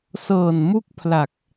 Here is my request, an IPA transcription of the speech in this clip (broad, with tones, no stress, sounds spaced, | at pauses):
s ɤː˨˩ n m u˥˩ k̚ pʰ l a˨˩ k̚